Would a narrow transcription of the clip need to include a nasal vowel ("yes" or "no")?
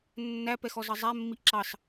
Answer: no